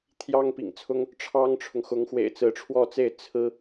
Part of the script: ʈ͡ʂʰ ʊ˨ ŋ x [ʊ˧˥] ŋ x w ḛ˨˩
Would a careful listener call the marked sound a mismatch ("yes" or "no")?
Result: no